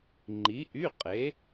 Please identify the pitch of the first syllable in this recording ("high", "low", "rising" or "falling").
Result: rising